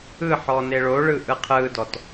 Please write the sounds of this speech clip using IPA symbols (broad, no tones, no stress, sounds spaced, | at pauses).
ɯ ħ ɔ n e ɭ o ɭ ɯ ʔ ɯ qʰ ɯ d ɔ t